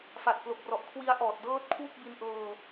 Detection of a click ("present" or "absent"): absent